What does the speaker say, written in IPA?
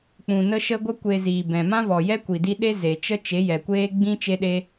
k͡p ũ˧ n ə˦ ʃ ə˦ ɡʷ ə˦ kʷ e˧ z iː˨ b ɛ̃˨ m ã˦ v ɔ˨ j ɛ˦ kʷ i˨ d i˧ ɗ e˦ z e˨ t͡ʃ ə˦ t͡ʃ e˨˦ j ɛ˨ kʷ eː˦ ɡ͡b ĩ˦ t͡ʃ e˦ ɗ e˦

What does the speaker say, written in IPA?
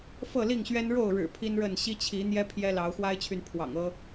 f ɤ˥˨ l i˥˨ ŋ ɕ ɥ ɛ˦ n ɻ o˥˨ ʊ̯ ɻ ɻ̩˨˩ pʰ i˦ n ɻ ə˥˨ n ɕ i˦ t͡ɕʰ i˨˦ n̪ j ɛ˦ pʰ j ɛ˦ l ɑ˨˦ ʊ̯ x w a˦ ɪ̯ t͡ɕʰ y˨ n pʰ w ɑ̰˨˩ ŋ ɤ˦

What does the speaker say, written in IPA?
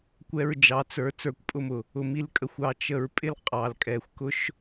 kʷ ɛ˧ ɹ d͡ʒ ɑ˨ t͡s ə˞˨˦ t͡s ə˞˧ kʷ pʼ ʊ˦ m ʊ˨ | ʊ˨ m i˧ l kʼ ə˨ xʷ ɑ˧ t͡ʃ ə˧ ɹ pʼ ɪ˦ l qʼ ɑ˨ l kʼ ɛ˨ xʷ k ʊ˦ ʃ

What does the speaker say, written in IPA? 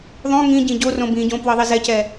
ðˤ õ ŋ ĩ ɟ ĩ ɟ o r õ b ĩ ɟ õ p w ɤ ðˤ i z ɛ c ɛ

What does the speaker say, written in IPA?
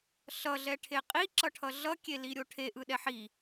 ɬ ʌ ɮ ɛ ʈʰ e qʼ i ǁ ʌ ʈʰ ʌ ɮ ʌ kʲ e l i ɾʲ o ʈʰ e ʔ ɯ ɗ ɛ ħ i

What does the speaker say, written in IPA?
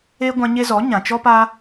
e˧ ɡʷ ã˧ ɲ e˧ z ɔ˨˦ ɲ ã˨ t͡ʃ ɔ˦ p a˦

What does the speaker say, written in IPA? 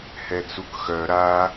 h ɛ t͡s u k x œ ɾ a

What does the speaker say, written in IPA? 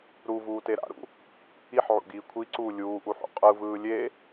ɾ u v uː t e ɾ a̰ ɾ ṵ | i ħ ʕ ṵ ɡ iː kʷʰ i ǀ uː lʲ uː ʔ u ħ ṵ qʼ ɯ v ɯː lʲ e

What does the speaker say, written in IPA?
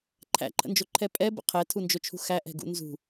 ǃʰ æ̰ ǃʰ ə̰ n d͡ʒ o ǃʰ ɛ pʼ ɛ b ə̰ qʰ ɛ tʰ u n d͡ʒ o t͡ʃʰ ṳ x æ ʔ ɛ̤ ɡ ṵ n z ṳ

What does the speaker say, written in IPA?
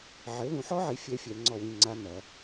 ʕ ɘ˩˥ l ũ˨˩˦ ħ ɔ˦˥ ʕ i˩˥ fʲ ɛ˦˥ fʲ ɛ˨˩˦ ŋ͡ǀ ɔ˥˨ w ĩ˥˨ ŋ͡ǀ a˦˥ n ɐ˨˩˦

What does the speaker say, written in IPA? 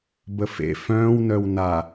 b ə f ḛ f œ̃ː w n œ w n a

